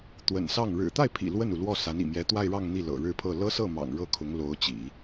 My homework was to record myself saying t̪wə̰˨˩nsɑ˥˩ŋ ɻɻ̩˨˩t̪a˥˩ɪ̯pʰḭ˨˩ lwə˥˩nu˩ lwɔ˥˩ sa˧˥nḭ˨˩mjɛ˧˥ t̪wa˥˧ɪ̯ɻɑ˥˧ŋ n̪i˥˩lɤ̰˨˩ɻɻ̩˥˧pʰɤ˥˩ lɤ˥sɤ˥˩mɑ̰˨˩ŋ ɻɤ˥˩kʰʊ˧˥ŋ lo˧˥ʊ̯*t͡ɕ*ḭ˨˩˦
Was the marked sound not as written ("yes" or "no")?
no